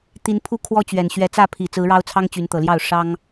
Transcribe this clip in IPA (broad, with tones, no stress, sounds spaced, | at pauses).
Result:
t̪ i˨˦ n pʰ u˦ kʰ w ɔ˦ t͡ɕ ɥ ɛ˨˩ n ɕ ɥ ɛ˨˦ t͡s ä˥˨ pʰ i˨˩ t͡s ɹ̩˨˦ ɻ ɑ˦ ʊ̯ t͡sʰ ɑ˦ ŋ t͡ɕ y˨˦ n t̪ ɤ˨˩ l j ɑ˥˨ ʊ̯ ʂ ɑ˦ ŋ